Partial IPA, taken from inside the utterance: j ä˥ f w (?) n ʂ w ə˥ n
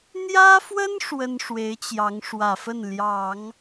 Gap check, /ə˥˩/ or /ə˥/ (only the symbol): ə˥